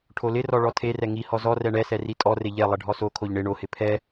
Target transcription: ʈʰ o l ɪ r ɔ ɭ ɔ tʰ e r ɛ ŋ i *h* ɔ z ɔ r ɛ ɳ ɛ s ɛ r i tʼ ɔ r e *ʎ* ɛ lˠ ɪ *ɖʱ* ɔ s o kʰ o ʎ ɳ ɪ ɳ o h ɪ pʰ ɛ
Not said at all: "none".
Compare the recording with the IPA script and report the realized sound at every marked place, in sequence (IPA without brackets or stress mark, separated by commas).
h, ʎ, ɖʱ